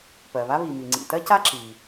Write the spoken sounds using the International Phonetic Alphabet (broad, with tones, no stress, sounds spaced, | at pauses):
p ɜ˩ β a˥ β i˩ m i˩ ŋ͡ǀ ḭ˩ t ɜ˥ c a˥ ǁ i˩